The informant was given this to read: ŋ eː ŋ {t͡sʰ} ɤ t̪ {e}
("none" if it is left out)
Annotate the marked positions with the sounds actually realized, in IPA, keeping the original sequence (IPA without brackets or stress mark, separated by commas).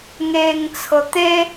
t͡sʰ, e